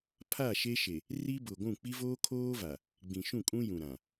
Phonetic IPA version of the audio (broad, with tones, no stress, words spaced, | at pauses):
pʰa˦˨ʃe˦ʃe˨ | ri˦bʊ˨ɡʷũ˦˨ k͡pi˦voː˦kʰoː˦va˨ | ɡ͡bĩ˨ʃũ˦˨kʼũ˦jũ˨ ɾã˨